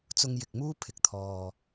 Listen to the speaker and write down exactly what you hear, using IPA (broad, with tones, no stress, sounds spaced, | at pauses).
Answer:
t͡s ʊ˧ ŋ j ɪ˨ k̚ m uː˥ pʰ ɪ˨ k̚ t̪ʰ ɔː˨